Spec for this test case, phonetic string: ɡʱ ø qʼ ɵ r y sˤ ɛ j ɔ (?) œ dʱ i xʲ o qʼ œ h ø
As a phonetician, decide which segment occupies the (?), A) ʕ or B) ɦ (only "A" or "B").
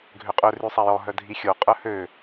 B